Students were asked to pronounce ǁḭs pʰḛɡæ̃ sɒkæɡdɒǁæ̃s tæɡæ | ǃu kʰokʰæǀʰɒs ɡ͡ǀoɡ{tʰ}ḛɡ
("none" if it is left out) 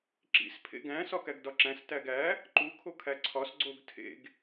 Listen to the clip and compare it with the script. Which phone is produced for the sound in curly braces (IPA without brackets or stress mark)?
tʰ